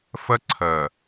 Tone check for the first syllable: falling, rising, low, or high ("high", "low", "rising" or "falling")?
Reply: high